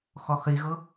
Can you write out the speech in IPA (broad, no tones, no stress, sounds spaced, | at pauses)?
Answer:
x ɔ χ i ɣ ɤ